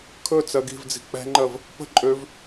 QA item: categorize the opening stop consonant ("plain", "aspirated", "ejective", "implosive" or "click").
aspirated